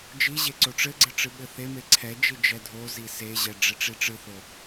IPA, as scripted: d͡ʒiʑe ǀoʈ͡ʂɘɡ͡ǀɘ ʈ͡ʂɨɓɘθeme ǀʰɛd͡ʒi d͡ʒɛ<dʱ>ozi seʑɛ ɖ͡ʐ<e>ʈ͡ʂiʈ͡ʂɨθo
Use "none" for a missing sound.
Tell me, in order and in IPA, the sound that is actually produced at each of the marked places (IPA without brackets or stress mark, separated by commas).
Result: dʱ, e